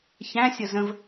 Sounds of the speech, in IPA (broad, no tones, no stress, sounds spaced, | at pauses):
ç æ̃ sʲ ʌ z ə̃ v